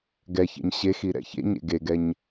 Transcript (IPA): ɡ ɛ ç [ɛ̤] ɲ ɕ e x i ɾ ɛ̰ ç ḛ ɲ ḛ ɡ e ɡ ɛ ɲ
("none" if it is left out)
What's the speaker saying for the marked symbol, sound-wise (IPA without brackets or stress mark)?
ɛ̰